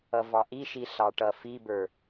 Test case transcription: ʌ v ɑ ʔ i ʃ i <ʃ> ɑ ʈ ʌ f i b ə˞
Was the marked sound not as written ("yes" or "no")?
yes